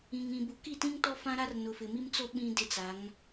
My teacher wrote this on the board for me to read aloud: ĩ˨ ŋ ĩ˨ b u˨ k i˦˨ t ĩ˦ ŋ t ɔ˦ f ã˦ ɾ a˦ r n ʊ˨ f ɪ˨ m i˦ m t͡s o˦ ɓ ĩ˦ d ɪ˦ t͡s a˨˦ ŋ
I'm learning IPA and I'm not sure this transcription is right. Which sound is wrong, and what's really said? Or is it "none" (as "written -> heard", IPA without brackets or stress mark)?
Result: none